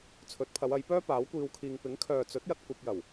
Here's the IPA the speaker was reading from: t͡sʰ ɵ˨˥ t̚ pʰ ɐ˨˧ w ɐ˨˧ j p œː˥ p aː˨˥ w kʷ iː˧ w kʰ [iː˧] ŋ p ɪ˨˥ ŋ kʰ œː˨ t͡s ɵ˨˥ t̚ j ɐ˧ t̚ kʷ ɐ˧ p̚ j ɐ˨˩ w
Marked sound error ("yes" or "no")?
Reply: no